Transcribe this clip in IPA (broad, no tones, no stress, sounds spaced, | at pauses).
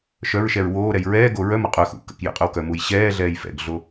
ʃ œ ɹ ʃ ɛ ɹ w oː ɾ ɛ j ɹ ɛː ɡ o ɹ œ m o qʼ œ x ṵ k ə̰ k j ə̰ qʼ œ w k œ m u j ɕ ɛː ɮ ɛː j f ɛ̰ ɡ ɮ o